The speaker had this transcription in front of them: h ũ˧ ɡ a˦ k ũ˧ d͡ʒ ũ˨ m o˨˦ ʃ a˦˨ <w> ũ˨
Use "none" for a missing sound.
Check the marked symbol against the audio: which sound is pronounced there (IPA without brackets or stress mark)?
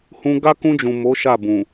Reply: b